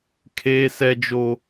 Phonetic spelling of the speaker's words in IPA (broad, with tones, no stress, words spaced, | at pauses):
kʰeː˦sɛ˦d͡ʒo˦